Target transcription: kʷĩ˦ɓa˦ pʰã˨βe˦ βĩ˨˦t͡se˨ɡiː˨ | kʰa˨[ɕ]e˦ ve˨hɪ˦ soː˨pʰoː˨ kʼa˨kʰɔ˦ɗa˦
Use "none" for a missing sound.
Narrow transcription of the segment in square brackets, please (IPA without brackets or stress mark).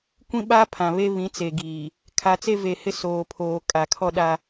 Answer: t͡s